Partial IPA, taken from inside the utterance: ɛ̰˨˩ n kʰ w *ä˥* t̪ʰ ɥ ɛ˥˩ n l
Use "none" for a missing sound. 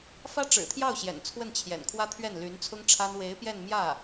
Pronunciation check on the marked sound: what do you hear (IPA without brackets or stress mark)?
ä˥